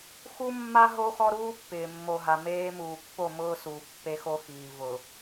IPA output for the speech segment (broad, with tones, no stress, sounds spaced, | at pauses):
x u˦ mː a˦ ɦ o˦ x ɔ˦ ɾ uː˦ pː ɪː˨ mː o˨ ɦ a˨ m eː˦ m uː˨ pː o˦˨ m ʊː˦ s uː˨ pː e˦ x o˦ x iː˨ v ʊ˨